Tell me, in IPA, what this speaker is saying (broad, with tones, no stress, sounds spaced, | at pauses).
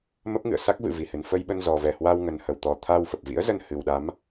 m ə˦˥ p̚ ŋ ɨ̰˧˨ ə̯ s a˦˥ k̚ v ɨ̰˧˨ v i˧˩ h ɨ˨˩ n f ə˧ j ɓ ə˧ n z ɔ˨˩ v ɛ˧˩ h w a˧ w ŋ ə˨˩ n h ə˨˩ w t̪ ɔ˨˩ t̪ʰ a˧ w f ə˨˩ p̚ v ḭ˧˥ ə̯ z ə˧ n h ɨ˨˩ w ɗ a˨˦ m